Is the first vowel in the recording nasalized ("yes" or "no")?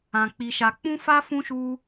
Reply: yes